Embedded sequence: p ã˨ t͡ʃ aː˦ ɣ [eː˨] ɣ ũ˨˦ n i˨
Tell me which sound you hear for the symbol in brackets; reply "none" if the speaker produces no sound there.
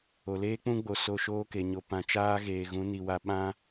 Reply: eː˨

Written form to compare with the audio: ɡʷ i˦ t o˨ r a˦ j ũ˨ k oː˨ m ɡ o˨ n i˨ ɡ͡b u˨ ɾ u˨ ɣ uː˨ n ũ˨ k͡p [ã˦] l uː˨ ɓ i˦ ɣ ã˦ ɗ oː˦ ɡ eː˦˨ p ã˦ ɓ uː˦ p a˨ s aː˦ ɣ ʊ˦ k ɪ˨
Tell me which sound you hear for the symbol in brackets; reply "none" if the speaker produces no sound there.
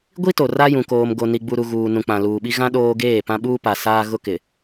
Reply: ã˨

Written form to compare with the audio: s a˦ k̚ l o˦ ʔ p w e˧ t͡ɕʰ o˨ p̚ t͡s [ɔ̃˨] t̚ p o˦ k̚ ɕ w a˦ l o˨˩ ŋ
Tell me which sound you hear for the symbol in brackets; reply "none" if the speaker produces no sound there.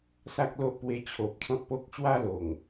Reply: ɔ̃˦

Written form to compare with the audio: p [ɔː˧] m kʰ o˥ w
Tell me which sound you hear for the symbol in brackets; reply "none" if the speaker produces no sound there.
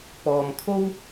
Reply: ɔː˧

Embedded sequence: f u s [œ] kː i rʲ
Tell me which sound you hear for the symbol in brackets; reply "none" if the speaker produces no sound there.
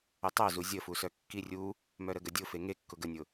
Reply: œ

